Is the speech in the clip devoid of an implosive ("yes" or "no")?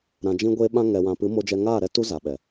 no